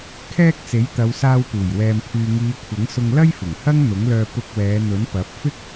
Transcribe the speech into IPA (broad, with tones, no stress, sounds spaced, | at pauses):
kʰ ɛː˧ k̚ t͡s e˨˥ j t̪ ɐ˨˧ w s aː˧ w p uː˨˩ j w ɛː˨ m pʰ yː˨ ŋ iː˨˧ kʷʰ ɐ˨˥ ŋ s ʊ˧ ŋ l ɐ˥ j f ɪ˨˩ ŋ h ɐ˥ ŋ n̪ ʊ˨˥ ŋ l œː˧ p ʊ˧ k̚ w ɛː˨˧ n̪ ɵ˨˥ n p ɐ˨˥ p̚ f ɪ˥ k̚